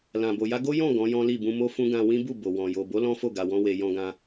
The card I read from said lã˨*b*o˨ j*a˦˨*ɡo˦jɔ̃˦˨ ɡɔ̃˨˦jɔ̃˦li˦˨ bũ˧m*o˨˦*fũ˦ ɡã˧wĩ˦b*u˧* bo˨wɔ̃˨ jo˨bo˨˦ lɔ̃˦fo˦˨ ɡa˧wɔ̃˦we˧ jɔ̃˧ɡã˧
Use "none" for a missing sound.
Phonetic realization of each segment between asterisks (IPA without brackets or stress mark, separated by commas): b, a˧, o˦, u˦˨